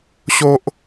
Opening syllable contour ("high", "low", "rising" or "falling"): high